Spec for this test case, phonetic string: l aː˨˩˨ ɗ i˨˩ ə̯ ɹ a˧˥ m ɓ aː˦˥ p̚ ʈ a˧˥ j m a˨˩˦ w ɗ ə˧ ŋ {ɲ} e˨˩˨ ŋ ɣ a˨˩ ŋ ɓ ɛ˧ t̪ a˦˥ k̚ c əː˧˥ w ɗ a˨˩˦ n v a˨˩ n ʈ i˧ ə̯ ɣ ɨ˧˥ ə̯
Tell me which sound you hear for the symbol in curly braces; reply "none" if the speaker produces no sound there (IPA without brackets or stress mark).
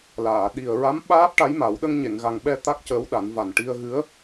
ɲ